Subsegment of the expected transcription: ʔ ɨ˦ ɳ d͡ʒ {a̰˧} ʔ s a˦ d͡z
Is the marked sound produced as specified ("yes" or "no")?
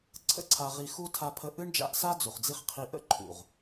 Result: yes